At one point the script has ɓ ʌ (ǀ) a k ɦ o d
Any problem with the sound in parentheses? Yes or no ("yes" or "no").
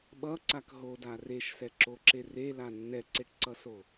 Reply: no